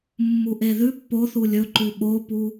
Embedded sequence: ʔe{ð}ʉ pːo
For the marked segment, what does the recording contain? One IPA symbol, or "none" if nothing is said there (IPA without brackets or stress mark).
ð